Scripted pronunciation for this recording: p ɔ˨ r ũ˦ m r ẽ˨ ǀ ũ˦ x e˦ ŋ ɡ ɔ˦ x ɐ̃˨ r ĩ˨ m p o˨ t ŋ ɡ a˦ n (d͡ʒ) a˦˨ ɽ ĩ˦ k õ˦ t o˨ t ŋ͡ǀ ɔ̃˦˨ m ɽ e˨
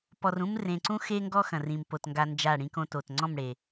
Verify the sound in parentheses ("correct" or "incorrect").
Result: correct